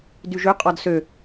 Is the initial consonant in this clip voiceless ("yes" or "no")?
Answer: no